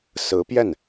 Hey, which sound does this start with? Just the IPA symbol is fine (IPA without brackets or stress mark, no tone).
s